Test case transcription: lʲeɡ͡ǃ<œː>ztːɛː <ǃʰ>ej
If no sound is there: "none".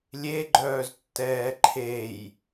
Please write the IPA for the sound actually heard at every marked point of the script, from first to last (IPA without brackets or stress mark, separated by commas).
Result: œː, ǃʰ